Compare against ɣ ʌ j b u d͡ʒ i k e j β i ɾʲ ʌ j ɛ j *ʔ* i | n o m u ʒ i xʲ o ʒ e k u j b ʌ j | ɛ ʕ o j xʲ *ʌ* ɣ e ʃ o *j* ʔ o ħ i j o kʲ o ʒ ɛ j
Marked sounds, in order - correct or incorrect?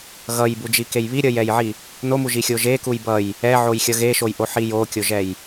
incorrect: ʕ, correct, correct

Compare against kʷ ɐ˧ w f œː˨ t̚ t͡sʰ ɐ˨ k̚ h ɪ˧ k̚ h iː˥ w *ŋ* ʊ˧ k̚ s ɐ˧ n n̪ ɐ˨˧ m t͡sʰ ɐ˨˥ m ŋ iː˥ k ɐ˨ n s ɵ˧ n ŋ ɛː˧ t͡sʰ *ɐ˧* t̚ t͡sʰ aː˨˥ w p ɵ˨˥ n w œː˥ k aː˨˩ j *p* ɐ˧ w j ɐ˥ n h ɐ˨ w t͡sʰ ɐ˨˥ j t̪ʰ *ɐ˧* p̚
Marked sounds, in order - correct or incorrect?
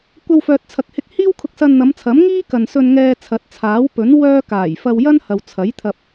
incorrect: kʰ, incorrect: ɐ˨˥, incorrect: f, correct

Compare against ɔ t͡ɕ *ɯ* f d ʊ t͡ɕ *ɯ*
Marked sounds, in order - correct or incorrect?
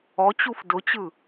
incorrect: u, correct

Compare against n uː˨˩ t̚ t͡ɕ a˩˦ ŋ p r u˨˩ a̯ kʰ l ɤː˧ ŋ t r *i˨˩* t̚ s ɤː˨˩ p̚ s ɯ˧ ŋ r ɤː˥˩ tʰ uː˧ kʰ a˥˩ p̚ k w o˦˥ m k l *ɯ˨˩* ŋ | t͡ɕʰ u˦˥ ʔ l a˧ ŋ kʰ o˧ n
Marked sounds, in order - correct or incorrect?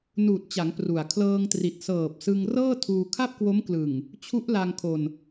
correct, correct

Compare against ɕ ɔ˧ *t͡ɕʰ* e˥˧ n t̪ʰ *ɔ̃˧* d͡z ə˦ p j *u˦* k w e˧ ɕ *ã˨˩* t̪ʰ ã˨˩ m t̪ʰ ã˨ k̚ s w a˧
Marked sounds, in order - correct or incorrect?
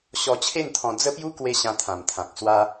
correct, correct, correct, incorrect: ã˧

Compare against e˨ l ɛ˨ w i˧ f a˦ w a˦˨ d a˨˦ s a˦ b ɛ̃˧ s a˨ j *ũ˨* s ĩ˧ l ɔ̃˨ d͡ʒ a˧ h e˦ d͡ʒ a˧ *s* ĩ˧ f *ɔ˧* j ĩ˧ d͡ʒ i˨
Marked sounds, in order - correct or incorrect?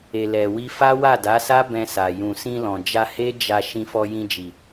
correct, incorrect: ʃ, correct

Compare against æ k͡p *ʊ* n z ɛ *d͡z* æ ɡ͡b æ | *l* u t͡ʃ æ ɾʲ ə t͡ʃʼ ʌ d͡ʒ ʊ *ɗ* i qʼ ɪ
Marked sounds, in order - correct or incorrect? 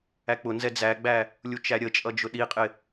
correct, correct, incorrect: lʲ, correct

